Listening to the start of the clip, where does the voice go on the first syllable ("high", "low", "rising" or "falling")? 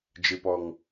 low